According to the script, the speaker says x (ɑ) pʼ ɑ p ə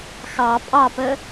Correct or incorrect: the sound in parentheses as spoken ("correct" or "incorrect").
correct